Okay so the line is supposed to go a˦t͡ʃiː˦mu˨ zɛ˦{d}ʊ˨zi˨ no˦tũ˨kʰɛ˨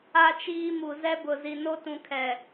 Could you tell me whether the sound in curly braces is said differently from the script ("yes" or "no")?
yes